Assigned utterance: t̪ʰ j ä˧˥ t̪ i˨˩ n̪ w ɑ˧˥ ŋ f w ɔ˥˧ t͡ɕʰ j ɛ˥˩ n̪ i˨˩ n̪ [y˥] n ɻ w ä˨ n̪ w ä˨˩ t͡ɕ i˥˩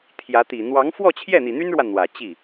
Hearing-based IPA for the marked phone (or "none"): y˥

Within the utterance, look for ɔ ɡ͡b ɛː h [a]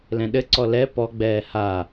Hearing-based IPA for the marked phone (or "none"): a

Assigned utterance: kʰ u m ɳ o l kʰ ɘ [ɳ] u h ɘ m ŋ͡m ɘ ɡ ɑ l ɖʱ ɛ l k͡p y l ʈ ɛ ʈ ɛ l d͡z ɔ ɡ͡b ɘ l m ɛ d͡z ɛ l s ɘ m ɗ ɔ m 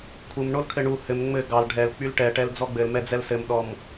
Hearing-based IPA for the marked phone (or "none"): ɳ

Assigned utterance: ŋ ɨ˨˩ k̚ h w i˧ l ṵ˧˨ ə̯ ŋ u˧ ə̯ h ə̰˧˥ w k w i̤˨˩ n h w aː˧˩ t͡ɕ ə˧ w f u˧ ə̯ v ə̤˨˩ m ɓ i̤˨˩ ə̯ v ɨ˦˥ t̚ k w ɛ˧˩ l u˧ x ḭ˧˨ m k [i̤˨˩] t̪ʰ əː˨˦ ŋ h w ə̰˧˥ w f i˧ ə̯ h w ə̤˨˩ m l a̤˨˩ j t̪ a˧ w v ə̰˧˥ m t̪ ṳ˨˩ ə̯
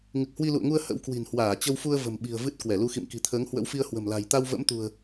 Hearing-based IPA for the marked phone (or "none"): i̤˨˩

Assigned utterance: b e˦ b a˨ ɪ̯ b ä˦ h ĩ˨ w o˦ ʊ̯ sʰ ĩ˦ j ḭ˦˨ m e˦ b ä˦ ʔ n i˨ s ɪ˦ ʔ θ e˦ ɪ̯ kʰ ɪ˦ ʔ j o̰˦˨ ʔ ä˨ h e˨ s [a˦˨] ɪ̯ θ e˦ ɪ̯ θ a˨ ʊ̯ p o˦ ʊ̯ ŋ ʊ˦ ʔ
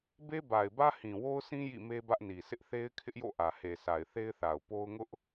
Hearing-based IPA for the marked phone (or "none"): a˨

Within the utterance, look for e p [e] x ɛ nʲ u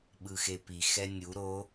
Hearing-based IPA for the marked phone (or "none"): i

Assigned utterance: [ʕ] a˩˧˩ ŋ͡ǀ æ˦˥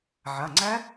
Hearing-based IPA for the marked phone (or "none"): ʕ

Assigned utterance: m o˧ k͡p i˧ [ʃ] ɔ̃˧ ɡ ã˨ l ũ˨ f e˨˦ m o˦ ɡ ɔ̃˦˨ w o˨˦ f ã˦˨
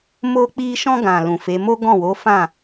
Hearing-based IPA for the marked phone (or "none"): ʃ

